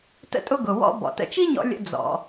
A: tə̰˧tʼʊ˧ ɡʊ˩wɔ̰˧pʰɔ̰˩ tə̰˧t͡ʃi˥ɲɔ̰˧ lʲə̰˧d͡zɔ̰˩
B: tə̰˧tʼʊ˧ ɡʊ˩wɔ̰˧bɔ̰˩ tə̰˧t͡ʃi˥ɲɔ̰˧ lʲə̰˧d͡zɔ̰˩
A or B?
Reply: B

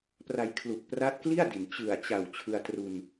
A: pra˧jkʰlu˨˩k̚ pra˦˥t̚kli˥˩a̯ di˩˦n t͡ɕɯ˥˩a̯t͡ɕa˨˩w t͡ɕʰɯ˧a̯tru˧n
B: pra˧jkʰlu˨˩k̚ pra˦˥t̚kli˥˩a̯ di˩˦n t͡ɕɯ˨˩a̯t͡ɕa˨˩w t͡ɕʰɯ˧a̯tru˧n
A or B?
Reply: B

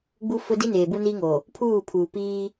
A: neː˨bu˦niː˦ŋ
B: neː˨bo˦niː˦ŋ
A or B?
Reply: A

